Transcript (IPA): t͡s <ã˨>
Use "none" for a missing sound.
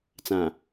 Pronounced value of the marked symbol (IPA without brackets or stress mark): ã˨